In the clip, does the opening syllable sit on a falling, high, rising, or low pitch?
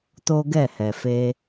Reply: high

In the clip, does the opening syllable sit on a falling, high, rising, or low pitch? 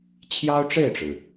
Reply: high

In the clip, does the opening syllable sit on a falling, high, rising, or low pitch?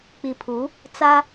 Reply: low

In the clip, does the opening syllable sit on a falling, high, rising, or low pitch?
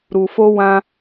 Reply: low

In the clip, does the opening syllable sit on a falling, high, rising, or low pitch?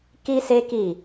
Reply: high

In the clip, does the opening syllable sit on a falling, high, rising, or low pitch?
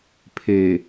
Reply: low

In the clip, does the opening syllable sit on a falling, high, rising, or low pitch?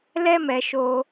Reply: high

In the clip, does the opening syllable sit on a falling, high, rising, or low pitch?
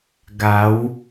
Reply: rising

